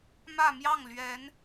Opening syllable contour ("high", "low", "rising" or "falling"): falling